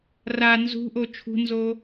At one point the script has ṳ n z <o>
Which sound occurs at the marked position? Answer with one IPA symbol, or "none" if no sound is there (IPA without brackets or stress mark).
o